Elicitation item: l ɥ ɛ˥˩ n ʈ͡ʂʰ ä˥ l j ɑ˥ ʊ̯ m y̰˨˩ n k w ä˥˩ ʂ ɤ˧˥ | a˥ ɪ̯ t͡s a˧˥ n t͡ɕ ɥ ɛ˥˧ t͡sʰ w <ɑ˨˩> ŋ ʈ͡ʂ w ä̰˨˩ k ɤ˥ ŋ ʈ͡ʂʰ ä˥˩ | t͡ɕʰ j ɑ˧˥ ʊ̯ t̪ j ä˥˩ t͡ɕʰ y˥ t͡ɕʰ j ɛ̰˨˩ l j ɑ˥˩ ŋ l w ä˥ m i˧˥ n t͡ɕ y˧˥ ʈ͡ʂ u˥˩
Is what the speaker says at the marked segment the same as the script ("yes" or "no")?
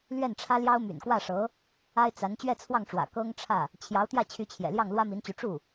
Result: no